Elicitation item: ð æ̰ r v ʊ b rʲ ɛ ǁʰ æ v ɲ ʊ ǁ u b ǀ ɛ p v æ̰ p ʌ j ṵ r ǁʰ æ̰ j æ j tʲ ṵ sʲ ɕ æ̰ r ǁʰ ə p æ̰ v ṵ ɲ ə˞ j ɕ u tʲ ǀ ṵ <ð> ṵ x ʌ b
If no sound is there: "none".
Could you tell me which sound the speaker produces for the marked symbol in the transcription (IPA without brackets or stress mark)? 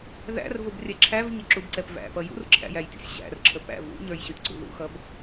ð